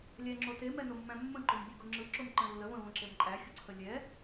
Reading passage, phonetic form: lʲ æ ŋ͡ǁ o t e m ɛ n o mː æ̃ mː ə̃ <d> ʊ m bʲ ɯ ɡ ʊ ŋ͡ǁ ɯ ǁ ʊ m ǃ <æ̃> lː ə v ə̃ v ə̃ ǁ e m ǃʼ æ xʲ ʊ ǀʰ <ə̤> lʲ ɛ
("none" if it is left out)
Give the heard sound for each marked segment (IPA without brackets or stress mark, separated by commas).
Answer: ǃ, ə̃, ə